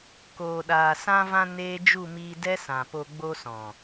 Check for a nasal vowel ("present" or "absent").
present